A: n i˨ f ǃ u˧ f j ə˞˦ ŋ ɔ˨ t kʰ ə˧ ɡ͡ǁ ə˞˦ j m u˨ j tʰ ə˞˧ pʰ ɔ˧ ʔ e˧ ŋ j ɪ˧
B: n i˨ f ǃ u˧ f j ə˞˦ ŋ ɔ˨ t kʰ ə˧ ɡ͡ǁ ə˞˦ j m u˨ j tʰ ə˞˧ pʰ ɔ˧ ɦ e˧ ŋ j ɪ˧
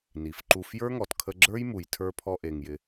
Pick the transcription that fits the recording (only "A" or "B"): A